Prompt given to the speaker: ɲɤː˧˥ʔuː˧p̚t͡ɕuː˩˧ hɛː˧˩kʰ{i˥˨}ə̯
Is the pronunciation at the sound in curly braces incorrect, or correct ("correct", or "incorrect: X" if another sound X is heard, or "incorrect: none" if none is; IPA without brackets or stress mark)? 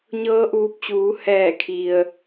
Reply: incorrect: i˩